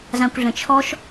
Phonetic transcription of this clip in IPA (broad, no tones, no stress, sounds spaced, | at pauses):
z ã kʷ ɮ ə̃ t͡ʃʰ ɔ ʃ